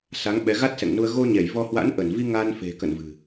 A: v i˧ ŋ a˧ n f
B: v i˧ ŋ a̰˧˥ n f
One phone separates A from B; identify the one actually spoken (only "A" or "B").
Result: A